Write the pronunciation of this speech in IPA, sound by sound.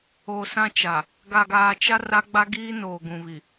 oː˨ s ã˦ t͡ʃ a˨ | ɡ a˨ ɡ aː˨ t͡ʃ a˦ r a˦ ɡ͡b a˦ ɡ iː˦ n oː˨ ɡ ũ˨ β i˨

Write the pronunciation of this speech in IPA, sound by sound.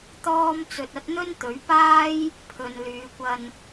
t̪ ɔː˥ m t͡s ɵ˧ t̚ ɐ˥ t̚ n̪ ɵ˥ n t̪ ɵ˨˥ ɥ p aː˥ j | pʰ ɵ˨ n l yː˨˧ kʷ ɐ˧ n

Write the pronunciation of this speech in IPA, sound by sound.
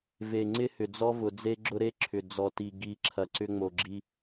v e˨ ŋ͡ǀ ɪ˦ h ʏ˨ d͡z ɔ˦ v ʊ˨ d͡z e˦ ɡ͡ǁ ʊ˦ ɾ e˦ ǁʰ ʏ˨ d͡z ɔ˨ t i˨ ɡ i˨ ǁʰ ɐ˨ ǀ ʏ˦ ŋ͡m o˨ ɡ͡ǁ i˦

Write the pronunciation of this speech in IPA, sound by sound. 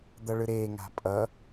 d̪ ʌ ɭ ɯ ɾ e ŋ a̤ pʼ ʌ

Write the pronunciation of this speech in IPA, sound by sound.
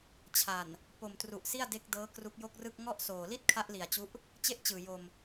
t͡ɕʰ a˨˩ n | p o˨˩ m t r u˨˩ ʔ s i˥˩ a̯ d e˦˥ k̚ d ɤː˦˥ k r u˦˥ k̚ j o˥˩ k̚ r ɯ˥˩ k̚ ŋ ɔ˥˩ ʔ s oː˨˩ l i˥˩ t̚ kʰ a˦˥ ʔ l i˨˩ a̯ t͡ɕ u˦˥ ʔ | t͡ɕ e˥˩ ʔ t͡ɕ ɯː˨˩ j o˧ m

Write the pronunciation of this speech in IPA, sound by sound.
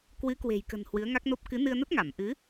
k w ɨ˨˦ k w e̤˨˩ j k ə̤˨˩ n h w ɨ˨˦ ə̯ ŋ a˦˥ k̚ n o˦˥ p̚ k ɨ˨˦ n ɨ˧ ə̯ n ə˦˥ t̚ ŋ a˧˩ m ʔ ɨ˨˦

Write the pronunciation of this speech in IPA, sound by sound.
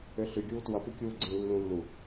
ø ɬ ʉ ɡʲ uː t w ʌ p ʉ kʲ uː ɡ͡ǀ ĩ lː ũ lː u

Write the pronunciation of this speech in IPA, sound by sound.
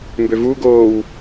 m b ø v u ɡ oː w

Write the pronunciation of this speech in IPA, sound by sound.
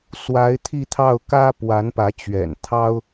s w a˧˥ ɪ̯ t̪ʰ i˥˧ t̪ʰ ɑ˥˩ ʊ̯ k ä˥ p w a˧˥ n p ä˧˥ t͡ɕ ɥ ɛ̰˨˩ n t̪ʰ ɑ˥ ʊ̯

